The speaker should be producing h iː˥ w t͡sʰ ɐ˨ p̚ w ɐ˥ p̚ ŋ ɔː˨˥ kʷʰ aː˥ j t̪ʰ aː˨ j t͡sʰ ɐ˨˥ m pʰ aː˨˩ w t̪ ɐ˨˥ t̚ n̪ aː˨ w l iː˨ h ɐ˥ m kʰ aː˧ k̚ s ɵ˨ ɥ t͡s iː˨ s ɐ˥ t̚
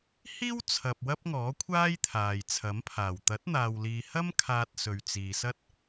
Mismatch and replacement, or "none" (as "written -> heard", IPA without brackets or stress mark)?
k̚ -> t̚